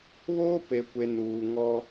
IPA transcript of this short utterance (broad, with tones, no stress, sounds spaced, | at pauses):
β oː˦ p e˨ kʷ e˨ n uː˨ ŋ ɔ˦